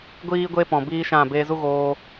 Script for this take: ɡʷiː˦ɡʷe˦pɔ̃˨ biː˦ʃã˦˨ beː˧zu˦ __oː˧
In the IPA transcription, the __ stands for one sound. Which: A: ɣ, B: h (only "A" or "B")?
A